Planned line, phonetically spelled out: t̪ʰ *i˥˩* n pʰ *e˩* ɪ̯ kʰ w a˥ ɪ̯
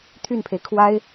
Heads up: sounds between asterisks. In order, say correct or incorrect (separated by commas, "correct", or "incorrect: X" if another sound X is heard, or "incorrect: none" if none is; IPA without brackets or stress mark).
incorrect: y˥˩, correct